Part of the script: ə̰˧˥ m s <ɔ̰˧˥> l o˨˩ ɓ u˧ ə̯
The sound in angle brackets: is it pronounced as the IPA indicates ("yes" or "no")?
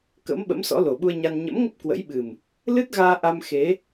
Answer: yes